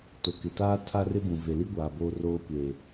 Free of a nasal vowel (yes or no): no